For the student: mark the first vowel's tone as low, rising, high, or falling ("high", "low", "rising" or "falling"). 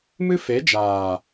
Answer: high